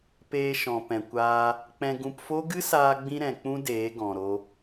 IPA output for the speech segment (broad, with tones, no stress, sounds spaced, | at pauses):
p eː˧ ʃ ɔ̃˨ p ɛ̃˨ kʷ aː˧ | k͡p ɛ̃˧ ɡ ũ˧ p f o˦ ɡ ɨ˦ s aː˧ ɡ͡b ĩ˧ ɾ ɛ̃˨ k͡p ũ˦ d eː˨˦ ɡ ɔ̃˨ ɾ o˧